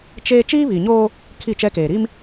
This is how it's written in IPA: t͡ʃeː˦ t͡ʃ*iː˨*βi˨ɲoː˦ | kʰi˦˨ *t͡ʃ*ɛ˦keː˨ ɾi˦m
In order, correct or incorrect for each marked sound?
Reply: incorrect: iː˦, correct

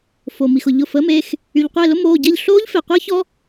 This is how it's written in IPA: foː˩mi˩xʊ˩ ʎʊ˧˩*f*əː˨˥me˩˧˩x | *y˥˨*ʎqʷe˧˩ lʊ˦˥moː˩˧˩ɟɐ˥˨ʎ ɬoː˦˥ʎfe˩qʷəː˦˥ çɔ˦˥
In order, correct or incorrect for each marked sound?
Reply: correct, incorrect: y˩

